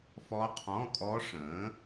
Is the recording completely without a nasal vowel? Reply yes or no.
no